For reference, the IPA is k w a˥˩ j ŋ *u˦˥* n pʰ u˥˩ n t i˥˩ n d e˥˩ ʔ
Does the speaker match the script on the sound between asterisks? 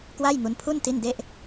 yes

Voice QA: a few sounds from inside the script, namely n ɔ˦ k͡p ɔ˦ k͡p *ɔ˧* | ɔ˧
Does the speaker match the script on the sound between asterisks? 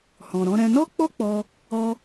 yes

